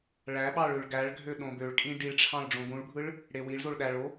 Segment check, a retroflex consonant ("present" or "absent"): present